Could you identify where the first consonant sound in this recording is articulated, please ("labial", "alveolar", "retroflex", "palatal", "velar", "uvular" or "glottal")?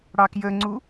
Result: retroflex